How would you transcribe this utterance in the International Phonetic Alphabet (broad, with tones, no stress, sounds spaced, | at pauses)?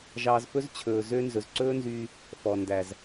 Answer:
ʒ ɑː˧ z f ɵ˦ z t͡ɕʰ ɵː˨ z ø˦ n z ɵ˨ z ǀ ɵː˦ n z yː˧ | f ɔ˨ n d æ˨ z